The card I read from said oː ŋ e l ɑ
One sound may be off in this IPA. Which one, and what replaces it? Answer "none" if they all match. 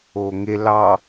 none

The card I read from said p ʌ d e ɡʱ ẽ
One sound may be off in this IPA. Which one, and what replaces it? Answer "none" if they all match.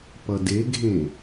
none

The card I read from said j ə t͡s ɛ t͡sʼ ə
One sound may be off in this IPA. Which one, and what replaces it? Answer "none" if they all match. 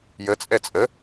t͡s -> t͡sʼ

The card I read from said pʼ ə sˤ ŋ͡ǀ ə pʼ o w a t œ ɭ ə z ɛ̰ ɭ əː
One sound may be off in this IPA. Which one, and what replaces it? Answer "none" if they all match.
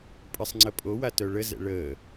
none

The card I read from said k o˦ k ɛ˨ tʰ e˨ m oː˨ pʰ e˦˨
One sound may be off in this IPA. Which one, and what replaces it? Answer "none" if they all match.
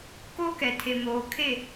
pʰ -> kʰ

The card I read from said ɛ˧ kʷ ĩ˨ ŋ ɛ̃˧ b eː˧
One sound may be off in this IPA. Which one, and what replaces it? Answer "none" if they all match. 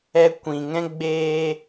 b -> ɡ͡b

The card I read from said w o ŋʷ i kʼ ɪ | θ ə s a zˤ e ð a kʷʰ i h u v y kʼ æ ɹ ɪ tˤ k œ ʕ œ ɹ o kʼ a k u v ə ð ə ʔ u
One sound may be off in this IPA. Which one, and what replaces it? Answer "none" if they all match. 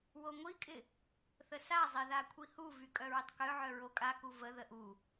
æ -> œ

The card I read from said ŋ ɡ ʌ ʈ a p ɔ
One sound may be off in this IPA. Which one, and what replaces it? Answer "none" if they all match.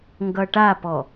none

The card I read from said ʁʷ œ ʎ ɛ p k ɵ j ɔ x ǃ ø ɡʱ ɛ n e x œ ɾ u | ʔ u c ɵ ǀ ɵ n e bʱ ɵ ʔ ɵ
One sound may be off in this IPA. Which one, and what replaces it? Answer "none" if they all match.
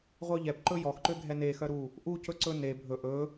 k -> ǃ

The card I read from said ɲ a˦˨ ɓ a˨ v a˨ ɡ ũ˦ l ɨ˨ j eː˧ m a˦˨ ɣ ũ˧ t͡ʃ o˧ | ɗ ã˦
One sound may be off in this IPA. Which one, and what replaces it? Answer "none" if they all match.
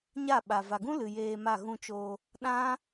none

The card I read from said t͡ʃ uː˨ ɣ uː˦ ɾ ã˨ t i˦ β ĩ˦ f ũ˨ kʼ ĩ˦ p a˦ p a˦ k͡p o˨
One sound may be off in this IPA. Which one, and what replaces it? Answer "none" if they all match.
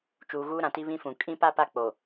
none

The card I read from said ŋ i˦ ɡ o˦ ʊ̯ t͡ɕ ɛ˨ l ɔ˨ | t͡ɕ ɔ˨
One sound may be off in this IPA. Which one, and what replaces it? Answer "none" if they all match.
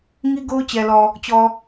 none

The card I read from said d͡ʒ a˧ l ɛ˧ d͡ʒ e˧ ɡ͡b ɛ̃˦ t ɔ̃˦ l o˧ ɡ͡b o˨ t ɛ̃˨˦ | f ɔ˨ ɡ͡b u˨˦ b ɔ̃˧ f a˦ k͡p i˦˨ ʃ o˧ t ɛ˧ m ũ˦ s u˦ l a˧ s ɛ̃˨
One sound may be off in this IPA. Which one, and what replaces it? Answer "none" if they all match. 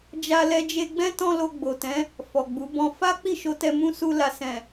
none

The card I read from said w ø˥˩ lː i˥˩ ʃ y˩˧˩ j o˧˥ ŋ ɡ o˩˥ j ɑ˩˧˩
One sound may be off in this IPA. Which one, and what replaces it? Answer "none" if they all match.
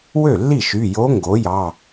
none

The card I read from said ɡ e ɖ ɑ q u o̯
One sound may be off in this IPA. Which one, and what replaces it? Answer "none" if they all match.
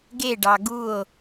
q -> ɡ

